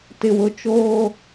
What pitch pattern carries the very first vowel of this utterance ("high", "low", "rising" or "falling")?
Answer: low